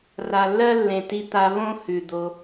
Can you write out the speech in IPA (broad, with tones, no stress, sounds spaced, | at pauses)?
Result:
r a˨ lː ɜ˦ lː ẽ˨ t i˧ t̪ a˧ β õ˦ h ʉ˨ d̪ o˧